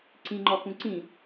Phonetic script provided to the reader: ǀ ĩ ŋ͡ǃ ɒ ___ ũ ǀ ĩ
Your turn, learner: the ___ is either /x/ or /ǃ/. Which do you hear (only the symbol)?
x